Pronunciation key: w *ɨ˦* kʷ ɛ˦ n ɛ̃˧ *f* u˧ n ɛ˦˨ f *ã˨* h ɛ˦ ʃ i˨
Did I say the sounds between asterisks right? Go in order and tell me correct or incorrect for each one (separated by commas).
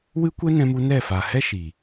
correct, incorrect, incorrect